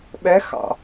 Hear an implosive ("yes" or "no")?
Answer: yes